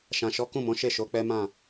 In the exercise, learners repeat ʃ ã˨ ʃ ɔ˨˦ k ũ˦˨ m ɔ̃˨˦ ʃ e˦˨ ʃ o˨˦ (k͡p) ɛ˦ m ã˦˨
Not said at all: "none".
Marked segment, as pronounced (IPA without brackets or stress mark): k͡p